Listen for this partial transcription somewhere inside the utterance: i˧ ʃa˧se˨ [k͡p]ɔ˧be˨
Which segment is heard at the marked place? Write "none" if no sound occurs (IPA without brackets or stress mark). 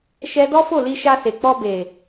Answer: k͡p